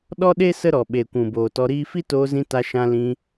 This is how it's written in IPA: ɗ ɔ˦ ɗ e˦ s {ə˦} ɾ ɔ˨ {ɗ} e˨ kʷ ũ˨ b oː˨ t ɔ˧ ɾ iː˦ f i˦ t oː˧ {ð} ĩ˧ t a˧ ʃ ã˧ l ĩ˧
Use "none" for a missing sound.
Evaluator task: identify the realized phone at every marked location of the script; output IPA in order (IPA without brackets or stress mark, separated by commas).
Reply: ə˦, ɓ, z